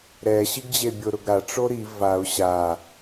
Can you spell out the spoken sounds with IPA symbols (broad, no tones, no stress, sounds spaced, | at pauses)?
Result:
ɾ ɛ ɕ i ɡ d͡ʑ e bʲ ʊ ɾ ʊ ɡ ɾ a ʈ͡ʂ o ɾ i v a ʊ̯ ɕ a